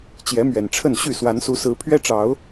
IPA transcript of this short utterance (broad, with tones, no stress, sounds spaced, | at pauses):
t͡ɕ j ɛ˨˦ m ɥ ɛ˨˩ n ʈ͡ʂʰ ə˥˨ n ɕ y˥˨ s w a˨˦ n s u˨˦ s ɹ̩˨˦ pʰ ɥ ɛ˦ ʈ͡ʂ ɑ˨˦ ʊ̯